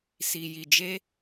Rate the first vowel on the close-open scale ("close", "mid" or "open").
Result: close